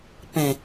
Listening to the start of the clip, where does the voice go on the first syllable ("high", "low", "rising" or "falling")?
low